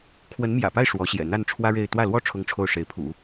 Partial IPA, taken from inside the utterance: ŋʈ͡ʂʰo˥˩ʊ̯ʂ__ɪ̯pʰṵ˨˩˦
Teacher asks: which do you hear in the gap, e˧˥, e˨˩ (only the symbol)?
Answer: e˧˥